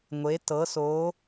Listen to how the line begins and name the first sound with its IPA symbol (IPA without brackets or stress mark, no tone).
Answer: ŋʷ